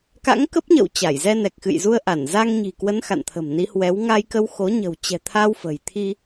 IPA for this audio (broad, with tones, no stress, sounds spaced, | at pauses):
k a̰˧˥ ŋ k ə˦˥ p̚ ɲ ə̰˧˨ w t͡ɕ a˧˩ j z ɛ˧ n ɛ˨˩ k̚ x ɨ̰˧˨ j z u˧ ə̯ ʔ a˧˩ n z a˧ ŋ ɲ i̤˨˩ k w ə˨˦ n x a̰˧˨ n t̪ʰ ə̤˨˩ m n i˨˦ h w ɛ˨˦ w ŋ a˧ j k ə˧ w x o˨˦ ɲ ə̤˨˩ w t͡ɕ ɛ̤˨˩ t̪ʰ a˧ w f ə̤˨˩ j t̪ʰ i˧